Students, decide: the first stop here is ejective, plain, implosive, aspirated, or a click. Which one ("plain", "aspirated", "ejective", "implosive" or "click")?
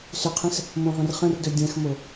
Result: aspirated